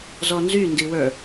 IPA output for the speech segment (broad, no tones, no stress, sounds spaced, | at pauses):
z ɔ n z y n d i w ə˞